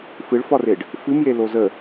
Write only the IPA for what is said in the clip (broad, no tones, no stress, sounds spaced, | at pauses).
f ɨ ɭ f ɒ r e ɖ | f ɨ m j e l o z ə